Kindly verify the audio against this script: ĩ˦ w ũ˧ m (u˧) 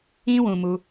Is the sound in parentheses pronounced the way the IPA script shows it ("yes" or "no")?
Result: yes